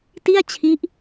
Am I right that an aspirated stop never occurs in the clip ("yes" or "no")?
no